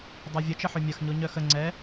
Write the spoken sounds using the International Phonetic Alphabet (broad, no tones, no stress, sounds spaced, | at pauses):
dˤ o vʲ ə t͡ʃ ə ħ ø mʲ ɐ x ɲ o ɲ œ x ə ŋ͡ǀ ɛ